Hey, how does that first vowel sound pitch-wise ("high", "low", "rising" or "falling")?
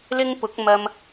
high